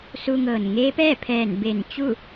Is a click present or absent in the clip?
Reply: absent